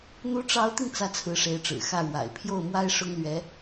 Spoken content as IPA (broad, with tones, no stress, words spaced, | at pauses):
n̪u˧˥ʈ͡ʂɑ˧˥ʊ̯t̪i˧ŋ t͡sä˥˩t͡sʰɹ̩˧˥ʂe˧˥ɪ̯ʈ͡ʂɻ̩˨˩ xä˥˩ɻwa̰˨˩ɪ̯ pʰjo˥˩ʊ̯mwa˥ɪ̯ʂʊ˥ŋlɥɛ˧˥